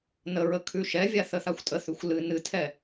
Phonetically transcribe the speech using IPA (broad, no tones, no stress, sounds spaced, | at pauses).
n ə ɹ ə kʰ ʉ ʃ ɛ vʲ a θ ə θ a xʷ tʼ ə θ ʉ xʷ l ɨ n ɨ tʰ ɛ